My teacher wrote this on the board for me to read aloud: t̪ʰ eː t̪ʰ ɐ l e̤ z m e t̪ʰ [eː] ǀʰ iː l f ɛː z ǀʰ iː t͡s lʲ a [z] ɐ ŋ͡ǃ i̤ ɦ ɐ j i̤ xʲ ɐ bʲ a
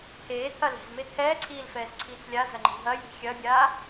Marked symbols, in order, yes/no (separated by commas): no, yes